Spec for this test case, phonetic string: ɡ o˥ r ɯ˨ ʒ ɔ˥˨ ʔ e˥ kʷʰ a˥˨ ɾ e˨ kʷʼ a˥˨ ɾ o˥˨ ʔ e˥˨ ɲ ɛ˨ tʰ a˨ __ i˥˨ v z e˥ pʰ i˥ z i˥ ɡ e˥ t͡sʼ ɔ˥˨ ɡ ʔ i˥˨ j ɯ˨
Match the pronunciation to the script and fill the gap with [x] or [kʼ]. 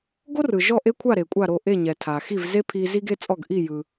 x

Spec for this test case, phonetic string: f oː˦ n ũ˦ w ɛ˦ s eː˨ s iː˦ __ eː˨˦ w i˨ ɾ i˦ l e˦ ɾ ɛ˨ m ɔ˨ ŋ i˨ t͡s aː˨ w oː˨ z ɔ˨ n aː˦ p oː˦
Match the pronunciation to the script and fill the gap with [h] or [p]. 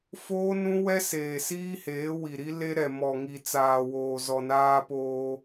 h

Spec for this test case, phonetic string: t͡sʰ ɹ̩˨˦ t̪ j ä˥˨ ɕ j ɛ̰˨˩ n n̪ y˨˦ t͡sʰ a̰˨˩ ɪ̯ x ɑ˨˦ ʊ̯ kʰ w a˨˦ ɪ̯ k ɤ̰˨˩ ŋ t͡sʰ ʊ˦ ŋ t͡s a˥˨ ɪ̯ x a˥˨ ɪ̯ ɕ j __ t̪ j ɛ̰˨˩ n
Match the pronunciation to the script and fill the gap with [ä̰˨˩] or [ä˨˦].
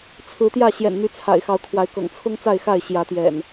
ä˨˦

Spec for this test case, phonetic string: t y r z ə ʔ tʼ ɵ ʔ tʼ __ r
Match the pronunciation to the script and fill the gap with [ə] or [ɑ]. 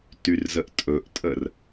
ə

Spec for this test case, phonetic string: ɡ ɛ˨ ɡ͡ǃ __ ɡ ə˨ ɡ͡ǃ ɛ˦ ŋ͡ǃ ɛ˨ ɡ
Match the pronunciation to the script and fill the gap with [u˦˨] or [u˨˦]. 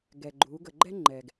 u˨˦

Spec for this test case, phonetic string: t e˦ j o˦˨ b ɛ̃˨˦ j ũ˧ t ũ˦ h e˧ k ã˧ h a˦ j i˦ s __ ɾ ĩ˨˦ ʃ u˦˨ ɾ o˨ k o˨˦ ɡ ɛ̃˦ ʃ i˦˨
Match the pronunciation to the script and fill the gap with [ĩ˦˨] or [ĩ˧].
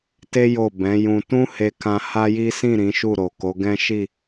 ĩ˦˨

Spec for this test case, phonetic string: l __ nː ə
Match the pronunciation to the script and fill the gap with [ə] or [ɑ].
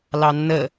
ɑ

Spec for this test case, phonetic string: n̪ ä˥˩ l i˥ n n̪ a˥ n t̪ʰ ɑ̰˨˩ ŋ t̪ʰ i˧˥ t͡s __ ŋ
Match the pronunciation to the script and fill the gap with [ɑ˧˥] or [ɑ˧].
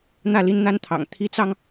ɑ˧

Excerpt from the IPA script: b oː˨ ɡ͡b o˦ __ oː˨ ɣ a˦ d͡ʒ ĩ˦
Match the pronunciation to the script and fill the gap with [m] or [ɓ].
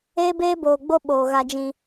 ɓ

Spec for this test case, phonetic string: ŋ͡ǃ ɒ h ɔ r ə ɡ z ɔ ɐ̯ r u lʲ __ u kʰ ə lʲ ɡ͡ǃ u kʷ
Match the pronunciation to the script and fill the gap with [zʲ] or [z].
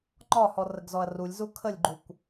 z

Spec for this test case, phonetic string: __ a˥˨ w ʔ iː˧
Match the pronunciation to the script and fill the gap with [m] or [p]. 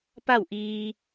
p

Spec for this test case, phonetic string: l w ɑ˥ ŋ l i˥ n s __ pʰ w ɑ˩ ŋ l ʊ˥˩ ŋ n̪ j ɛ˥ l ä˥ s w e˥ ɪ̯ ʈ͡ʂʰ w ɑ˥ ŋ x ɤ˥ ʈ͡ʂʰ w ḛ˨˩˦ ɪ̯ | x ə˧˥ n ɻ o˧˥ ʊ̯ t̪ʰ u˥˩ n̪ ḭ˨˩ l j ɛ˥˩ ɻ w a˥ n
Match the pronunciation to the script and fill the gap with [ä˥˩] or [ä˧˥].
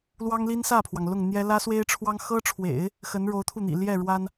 ä˥˩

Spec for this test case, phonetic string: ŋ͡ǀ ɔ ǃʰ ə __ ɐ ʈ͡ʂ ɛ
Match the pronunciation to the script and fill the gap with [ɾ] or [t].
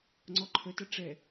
t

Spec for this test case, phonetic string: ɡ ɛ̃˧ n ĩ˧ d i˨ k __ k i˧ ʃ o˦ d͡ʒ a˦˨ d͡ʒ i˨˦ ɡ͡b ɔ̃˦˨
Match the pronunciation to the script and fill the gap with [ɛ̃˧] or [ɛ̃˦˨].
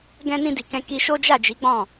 ɛ̃˧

